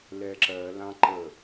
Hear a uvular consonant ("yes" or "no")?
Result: no